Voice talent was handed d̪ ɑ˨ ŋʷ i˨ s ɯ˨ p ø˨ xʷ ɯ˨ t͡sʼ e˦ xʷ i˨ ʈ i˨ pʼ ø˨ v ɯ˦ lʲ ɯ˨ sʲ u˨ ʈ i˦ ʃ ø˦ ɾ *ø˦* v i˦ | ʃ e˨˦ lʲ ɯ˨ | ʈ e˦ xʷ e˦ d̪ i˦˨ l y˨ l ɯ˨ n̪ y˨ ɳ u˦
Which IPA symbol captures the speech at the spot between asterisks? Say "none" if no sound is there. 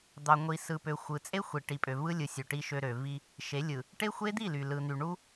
ø˨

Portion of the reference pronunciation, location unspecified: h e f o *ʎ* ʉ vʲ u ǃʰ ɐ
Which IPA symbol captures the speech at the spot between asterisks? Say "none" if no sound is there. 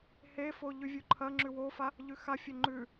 ʎ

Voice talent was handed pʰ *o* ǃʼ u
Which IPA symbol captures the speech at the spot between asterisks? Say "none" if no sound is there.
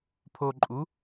o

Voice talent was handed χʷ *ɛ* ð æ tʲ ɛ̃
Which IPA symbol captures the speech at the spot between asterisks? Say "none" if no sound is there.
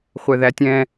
ɛ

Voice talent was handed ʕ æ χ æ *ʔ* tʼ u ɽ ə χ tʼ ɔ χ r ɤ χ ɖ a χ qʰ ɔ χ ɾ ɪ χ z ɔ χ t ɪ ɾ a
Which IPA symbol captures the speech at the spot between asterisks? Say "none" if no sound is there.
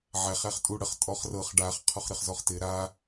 χ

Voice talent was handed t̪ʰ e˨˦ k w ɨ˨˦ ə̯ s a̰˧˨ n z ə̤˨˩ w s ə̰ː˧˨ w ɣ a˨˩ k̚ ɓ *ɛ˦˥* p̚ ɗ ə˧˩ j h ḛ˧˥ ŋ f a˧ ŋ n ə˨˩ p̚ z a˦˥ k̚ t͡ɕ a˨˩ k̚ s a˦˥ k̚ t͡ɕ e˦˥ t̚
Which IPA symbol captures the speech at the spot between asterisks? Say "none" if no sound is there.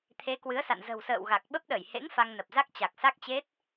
ə˦˥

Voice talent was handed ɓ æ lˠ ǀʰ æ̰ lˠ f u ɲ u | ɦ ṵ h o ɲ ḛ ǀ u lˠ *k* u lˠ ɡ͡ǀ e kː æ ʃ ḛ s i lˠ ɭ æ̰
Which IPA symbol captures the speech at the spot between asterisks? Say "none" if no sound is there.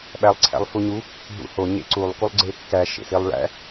k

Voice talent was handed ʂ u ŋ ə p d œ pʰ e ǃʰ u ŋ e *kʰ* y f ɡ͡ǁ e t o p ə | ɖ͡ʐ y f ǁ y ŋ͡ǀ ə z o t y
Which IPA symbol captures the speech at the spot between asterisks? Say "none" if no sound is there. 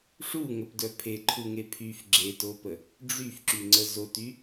pʰ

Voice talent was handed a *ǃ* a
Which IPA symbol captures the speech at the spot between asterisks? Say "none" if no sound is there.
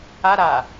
ɾ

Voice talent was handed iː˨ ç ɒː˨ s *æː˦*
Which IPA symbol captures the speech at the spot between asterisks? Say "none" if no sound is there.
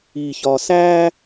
æː˦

